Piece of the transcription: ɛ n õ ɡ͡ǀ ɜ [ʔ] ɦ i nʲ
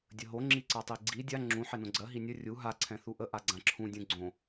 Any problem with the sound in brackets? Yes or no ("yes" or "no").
yes